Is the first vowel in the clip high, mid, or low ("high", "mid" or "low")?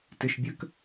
high